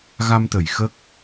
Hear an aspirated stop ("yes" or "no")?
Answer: no